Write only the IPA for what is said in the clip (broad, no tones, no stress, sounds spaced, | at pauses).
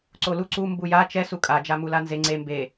ǀ o l u ǀ u m b u j a t͡ʃ ɛ s u kʼ a d͡ʒ a m u l a n z e ŋ͡ǀ e m b e